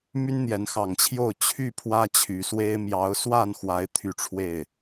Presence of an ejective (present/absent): absent